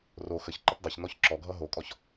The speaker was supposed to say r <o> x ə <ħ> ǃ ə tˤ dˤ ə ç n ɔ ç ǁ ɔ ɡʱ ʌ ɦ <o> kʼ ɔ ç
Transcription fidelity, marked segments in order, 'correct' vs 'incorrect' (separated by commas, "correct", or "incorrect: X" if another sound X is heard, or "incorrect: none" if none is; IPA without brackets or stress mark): correct, incorrect: ç, correct